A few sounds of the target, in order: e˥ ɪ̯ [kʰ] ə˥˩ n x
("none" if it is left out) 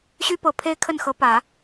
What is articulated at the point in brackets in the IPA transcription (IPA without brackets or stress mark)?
kʰ